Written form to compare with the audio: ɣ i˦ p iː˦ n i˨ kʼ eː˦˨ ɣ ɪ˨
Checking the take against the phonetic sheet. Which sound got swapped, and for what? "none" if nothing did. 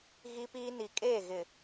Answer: none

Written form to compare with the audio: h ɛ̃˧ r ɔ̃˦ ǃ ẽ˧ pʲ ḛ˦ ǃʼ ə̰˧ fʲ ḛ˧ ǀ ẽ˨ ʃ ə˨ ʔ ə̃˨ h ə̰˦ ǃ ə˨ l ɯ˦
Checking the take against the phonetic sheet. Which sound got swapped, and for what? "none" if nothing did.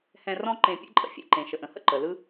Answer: ǀ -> ǃ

